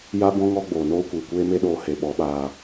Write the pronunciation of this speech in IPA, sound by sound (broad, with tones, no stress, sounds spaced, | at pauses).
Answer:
j a˦ b ɔ̃˦ ŋ ɔ˦ ɡ͡b oː˨ n oː˦ kʷ iː˨ kʷ eː˦ m e˦ ɗ oː˧ h e˨ ɓ ɔ˨˦ ɓ aː˧